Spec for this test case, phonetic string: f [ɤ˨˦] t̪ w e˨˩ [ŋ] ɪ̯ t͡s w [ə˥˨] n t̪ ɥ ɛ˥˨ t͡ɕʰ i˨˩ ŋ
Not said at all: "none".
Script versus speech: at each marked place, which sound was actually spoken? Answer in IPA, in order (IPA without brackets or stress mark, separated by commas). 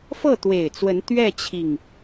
ɤ˥˨, none, ə˨˦